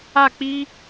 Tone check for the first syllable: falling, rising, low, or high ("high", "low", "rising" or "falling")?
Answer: falling